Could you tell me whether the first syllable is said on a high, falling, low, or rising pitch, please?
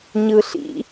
low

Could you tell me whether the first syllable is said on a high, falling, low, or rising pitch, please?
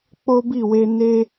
high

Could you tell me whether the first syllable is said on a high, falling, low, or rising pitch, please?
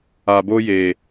low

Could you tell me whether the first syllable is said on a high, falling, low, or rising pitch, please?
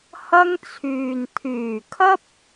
high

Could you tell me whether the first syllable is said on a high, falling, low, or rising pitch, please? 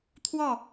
falling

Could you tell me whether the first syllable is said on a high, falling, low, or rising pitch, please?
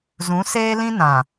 rising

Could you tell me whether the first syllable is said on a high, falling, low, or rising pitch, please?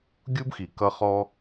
high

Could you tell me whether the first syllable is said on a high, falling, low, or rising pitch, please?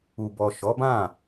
low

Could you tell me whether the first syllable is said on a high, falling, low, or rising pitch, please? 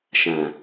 low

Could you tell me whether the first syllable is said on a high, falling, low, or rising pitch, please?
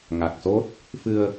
low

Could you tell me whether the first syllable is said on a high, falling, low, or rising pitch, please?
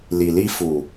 low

